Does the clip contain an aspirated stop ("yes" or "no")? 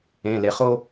no